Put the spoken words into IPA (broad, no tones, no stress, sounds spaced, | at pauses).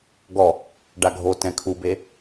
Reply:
ɡ ɔ | ɖ a ɡʱ o t ɛ̃ kʰ u b e